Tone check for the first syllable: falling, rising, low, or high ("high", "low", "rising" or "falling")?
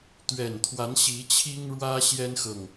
low